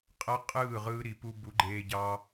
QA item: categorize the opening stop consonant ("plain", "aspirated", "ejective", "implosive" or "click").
ejective